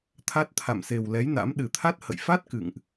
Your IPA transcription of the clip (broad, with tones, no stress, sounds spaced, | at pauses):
t̪ʰ a˦˥ t̚ t̪ʰ a̰˧˨ m s e˨˩ w l ɛ˨˦ j n a̰˧˥ m ɗ ɨ˨˩ t̪ʰ a˦˥ t̚ h ə̰˧˨ j f a˦˥ t̚ k ɨ̰˧˨ ŋ ʔ